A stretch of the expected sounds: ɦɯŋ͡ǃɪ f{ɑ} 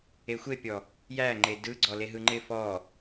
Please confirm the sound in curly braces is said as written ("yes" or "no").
no